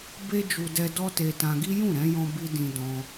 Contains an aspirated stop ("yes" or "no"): no